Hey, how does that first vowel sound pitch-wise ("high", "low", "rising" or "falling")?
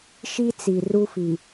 high